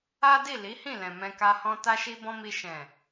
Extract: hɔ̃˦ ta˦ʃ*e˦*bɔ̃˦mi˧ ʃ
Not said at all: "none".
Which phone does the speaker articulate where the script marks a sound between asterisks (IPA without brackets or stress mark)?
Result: i˦